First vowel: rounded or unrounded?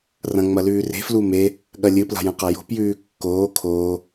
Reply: unrounded